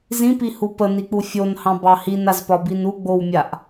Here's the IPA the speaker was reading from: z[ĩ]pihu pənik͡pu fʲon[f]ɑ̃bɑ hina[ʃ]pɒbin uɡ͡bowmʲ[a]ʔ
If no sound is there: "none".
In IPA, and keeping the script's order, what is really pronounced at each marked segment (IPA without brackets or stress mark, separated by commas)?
ĩ, h, z, a